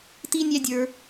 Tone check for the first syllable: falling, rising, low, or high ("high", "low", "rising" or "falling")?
high